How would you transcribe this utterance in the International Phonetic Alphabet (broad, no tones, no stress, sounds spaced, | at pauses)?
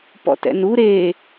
p ɔ̰ t ɛ̰ n u ɾ e